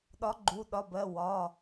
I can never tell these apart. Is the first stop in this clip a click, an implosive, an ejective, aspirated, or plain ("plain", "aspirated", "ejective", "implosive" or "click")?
implosive